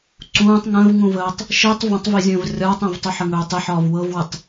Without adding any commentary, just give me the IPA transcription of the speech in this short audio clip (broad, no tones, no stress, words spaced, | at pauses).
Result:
ǀũːtˤ ŋə̃ːvŋũvəːtˤ | ʃitˤ və̃tˤvizʲə̃ːv rʲɒːtˤə̃ːvtˤu ħəŋɵːtˤɪħɒːv wɤvwətˤ